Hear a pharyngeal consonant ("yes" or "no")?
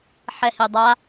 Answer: yes